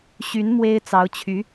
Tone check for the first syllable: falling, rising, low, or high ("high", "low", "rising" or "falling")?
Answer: rising